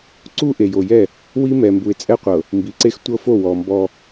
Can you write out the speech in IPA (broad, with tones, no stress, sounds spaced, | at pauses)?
ǀ u˦ ʔ e˨ j o˨ j ɛ˦˨ | w i˦ m ɛ˨ m b u˨ ɪ̯ t͡sʼ ɛ˦ qʷ ɤ˨ | m b i˨ ǀ e˦ x tʷ ɤ˦ f o˦˨ w ɔ˨ m b ɔ˦